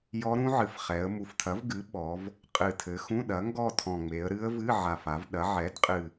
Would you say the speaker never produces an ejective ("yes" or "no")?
no